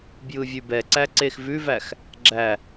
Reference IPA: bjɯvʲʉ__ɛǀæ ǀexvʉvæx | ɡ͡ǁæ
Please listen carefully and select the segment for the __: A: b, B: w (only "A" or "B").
A